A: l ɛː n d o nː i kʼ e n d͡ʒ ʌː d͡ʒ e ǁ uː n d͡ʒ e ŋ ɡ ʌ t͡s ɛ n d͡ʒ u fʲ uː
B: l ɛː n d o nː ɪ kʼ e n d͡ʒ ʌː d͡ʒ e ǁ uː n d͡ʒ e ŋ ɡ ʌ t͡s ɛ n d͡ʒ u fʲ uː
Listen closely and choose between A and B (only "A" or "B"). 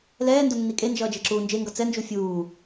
A